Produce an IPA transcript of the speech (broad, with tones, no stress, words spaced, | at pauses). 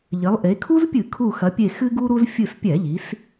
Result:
ʎɘ˩˧lˠʔe˩˧ kʰu˦zpʲɨ˧˩˧ kʰu˧˩xɐ˩˧pʲe˧˩ xɨ˦ɡu˦ɾu˦z fʲɨ˧˩spʲɛ˧˩˧ʎi˩˧s